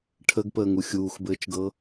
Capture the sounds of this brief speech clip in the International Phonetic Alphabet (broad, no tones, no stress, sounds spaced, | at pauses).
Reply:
ʈʰ ə ɡ p əː ŋ u xʲ uː x b ɘː t͡ʃ ɡ ɤ